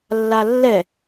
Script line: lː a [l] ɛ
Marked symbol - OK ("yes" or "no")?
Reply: no